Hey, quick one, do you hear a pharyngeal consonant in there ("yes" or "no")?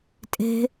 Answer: no